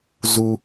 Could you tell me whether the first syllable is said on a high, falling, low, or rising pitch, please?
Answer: low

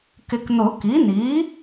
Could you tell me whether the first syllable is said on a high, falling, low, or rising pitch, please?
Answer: low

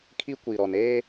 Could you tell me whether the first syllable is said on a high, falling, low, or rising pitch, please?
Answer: high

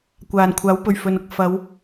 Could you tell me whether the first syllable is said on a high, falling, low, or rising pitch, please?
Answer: low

